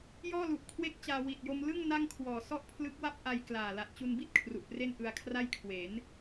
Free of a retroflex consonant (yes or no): yes